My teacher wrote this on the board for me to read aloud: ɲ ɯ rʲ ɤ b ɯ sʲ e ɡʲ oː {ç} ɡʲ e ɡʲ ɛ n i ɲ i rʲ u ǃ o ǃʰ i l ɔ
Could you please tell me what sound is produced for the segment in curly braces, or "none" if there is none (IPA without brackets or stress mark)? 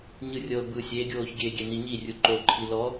ç